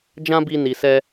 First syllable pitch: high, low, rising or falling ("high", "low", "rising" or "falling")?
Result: high